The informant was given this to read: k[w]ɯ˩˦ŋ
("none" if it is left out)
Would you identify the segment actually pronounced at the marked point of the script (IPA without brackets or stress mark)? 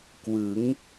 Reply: w